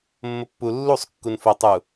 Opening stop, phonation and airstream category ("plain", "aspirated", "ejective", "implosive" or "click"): plain